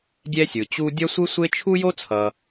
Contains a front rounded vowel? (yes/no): no